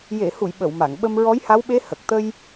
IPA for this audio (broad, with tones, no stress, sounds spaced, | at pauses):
j e˨˩˨ h u˨˩˨ j ɓ ə˨˩˨ w m a˨˩˨ ŋ ɓ ə˧ m ɹ ɔ˧˥ j h a˧˥ w ɓ e˧˥ h ə˨˩ k̚ t̪ ə˧ j